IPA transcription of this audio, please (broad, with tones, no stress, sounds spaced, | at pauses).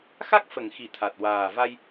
x a˦˥ k̚ f ə˨˩˨ ŋ x i˨˩˨ t̪ʰ a˨˩ t̚ w aː˨˩ v a˧ j